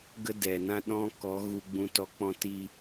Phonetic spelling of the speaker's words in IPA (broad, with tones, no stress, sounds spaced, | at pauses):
ɡ ə˦ d ɛ˨ n ã˦ ɗ ɔ̃˦ k ɔ˨˦ ɣ u˧ ɡ͡b ũ˧ t ɔ˨˦ k͡p ɔ̃˧ t i˧